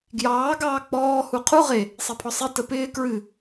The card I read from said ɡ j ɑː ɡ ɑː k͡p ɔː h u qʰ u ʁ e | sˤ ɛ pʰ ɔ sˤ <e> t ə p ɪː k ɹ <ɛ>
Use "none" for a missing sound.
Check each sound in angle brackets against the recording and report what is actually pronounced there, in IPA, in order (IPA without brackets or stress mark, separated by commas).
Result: e, ɨ